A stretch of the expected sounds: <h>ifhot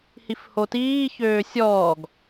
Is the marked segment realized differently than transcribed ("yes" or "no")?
no